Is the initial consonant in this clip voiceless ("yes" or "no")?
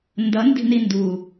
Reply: no